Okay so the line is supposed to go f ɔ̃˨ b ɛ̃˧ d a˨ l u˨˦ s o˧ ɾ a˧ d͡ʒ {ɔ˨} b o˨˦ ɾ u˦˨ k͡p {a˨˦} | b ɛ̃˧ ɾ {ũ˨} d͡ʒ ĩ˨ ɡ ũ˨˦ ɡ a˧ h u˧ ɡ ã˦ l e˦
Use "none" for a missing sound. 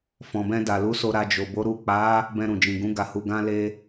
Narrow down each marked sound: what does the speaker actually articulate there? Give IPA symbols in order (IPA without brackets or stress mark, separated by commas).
o˨, a˨˦, ũ˨